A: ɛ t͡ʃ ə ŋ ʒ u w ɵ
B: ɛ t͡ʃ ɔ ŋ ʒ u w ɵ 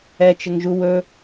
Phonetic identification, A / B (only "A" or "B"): A